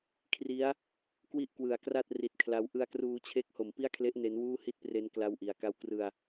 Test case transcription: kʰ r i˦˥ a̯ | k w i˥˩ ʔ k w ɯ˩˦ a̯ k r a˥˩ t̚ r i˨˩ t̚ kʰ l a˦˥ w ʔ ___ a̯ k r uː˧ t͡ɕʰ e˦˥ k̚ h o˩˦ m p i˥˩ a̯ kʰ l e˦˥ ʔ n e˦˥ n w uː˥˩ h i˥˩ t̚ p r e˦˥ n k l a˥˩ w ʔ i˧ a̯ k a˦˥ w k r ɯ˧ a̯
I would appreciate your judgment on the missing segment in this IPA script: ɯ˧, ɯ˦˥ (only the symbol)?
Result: ɯ˧